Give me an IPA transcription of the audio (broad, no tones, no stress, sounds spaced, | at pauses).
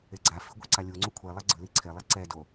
e ɡ͡ǀ a f i ɡʷ ɛ ǀ a lʲ u ŋ͡ǀ u kʷʰ e lˠ e ɡ͡ǀ ɯ l i ǀʰ e lˠ i ǀ ɛ d o